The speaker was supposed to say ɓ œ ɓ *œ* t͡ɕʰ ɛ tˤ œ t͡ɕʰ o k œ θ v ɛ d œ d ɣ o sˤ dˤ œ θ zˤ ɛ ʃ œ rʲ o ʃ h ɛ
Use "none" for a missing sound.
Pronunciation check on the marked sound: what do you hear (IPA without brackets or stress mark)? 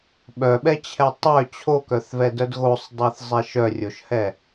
ɛ